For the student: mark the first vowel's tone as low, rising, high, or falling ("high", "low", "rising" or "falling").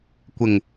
low